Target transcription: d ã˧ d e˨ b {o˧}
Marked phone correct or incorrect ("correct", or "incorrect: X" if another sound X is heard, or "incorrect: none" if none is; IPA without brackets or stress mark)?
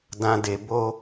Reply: correct